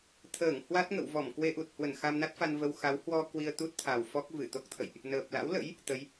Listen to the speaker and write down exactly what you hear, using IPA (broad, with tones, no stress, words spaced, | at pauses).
t̪ʰəː˧˩ŋhwa˦˥t̚ŋə̰˧˨w vɔ˧˩mkwe˧ʔu˨˩t̚hwə˧˩n xa˧mna˦˥t̚fa˧nvə˧w xa˨˦whwɔ˧ kwi˧ə̯t̪u˦˥t̚ t̪ʰa˨˩w fɔ˦˥k̚vɨ˧˩ t̪o˦˥k̚t̪ʰə̰˧˨jʔ | nəː˨˩p̚ la̰˧˥wlə̰˧˥j | t̪ə˨˦j